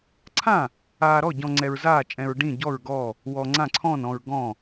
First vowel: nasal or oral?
nasal